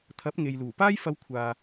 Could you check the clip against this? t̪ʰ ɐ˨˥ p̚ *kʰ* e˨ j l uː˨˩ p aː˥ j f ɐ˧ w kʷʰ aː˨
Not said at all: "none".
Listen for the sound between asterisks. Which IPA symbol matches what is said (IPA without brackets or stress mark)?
ŋ